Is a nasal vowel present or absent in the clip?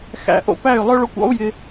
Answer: absent